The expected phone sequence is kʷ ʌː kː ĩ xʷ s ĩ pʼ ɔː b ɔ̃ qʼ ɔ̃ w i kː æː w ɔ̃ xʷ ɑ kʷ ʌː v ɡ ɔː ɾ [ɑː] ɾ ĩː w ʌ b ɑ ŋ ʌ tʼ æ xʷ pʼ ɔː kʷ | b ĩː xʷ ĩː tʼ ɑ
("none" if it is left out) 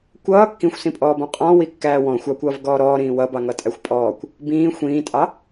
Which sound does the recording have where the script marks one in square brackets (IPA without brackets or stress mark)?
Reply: ɔː